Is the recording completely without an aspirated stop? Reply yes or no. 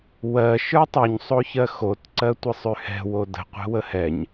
yes